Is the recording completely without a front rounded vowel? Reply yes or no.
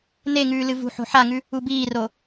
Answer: yes